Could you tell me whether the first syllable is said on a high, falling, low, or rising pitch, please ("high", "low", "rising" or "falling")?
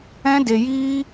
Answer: high